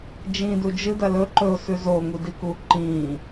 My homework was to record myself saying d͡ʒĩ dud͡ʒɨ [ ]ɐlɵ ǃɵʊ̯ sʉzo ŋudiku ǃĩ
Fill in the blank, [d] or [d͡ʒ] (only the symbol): d